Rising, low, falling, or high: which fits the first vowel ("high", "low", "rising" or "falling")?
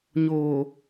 low